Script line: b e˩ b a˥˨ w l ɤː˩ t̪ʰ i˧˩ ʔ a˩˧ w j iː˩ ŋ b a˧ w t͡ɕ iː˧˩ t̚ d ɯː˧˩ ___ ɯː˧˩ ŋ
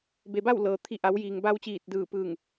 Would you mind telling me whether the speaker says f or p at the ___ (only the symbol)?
p